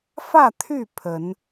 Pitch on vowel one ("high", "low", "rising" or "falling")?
falling